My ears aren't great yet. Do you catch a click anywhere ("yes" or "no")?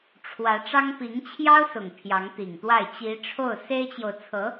no